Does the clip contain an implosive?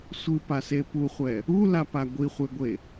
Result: no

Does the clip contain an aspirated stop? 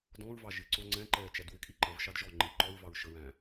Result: no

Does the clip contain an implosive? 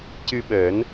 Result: yes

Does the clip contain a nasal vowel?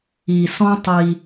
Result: yes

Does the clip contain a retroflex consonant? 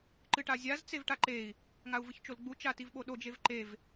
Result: yes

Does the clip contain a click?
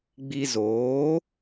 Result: no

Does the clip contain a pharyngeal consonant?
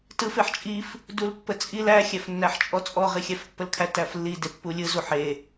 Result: yes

